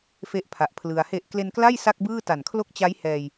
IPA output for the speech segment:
fe˥˩ʔpʰa˨˩ʔpʰlɯ˧a̯ he˨˩ʔ kle˧nkla˥˩j sa˥˩k̚bɯː˥˩ta˨˩n kʰlo˥˩k̚t͡ɕa˦˥j hɛː˧j

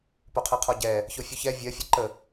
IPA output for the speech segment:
poqʰɜqʰɔɟɛ | çofʲuçɛ vʲɜ fʲɔǃə

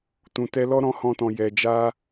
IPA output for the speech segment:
tũ˨ tɛ˧ lɔ˦ɾɔ̃˧hɔ̃˧tɔ̃˨ jɛ˨d͡ʒa˧

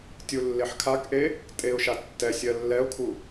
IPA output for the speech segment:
tʲulːeħkʰakʔe | tʼeʊ̯ʃa tːɛsʲ ɜlːɛʊ̯kʰu

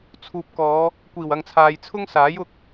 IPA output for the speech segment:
t͡sʰuː˨p̚kɔː˨˧ | kʷiː˨˩wɐ˨ŋt͡sʰaː˨j t͡sʰʊ˥ŋsaː˨˥j ʊ˥k̚

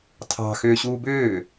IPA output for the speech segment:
tʰɑ̤ xʏːɕuːbʏː

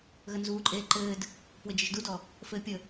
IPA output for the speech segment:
ɣənzuːǃʼeː ǃɘːd | pwɘd͡ʒɘʒdudɔ | fɘːpʲə

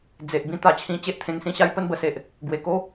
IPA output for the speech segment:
d͡ze˨ʔ bĩ˥˧t̪a˧t͡ɕʰĩ˧ t͡ɕe˦ʔt̪ʰẽ˧ŋsĩ˦ɕa˦j pə˥˧nbə˧se˨ʔ | ɡwe˨˩ko˦

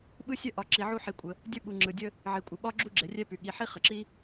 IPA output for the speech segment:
ɓɯ˥sʲœ˥ ʔɒ˨ ǁi˨ʕu˥ħi˨kʷʼə˩ | dʲə˥ɓu˨ ŋ͡ǁɯ˩dʲə˦ | ʕi˩kʷʼə˩ɓɒ˥ ɡ͡ǁu˥ɡ͡ǁɛ˩rʲɛ˥py˩ ɠi˨ħi˦ χə˩ǁi˦

